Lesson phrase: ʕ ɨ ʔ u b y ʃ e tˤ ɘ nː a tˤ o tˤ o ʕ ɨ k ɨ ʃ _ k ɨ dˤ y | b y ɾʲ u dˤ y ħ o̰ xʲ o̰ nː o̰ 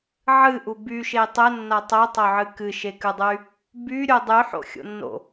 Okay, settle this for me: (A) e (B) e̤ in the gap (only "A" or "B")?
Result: A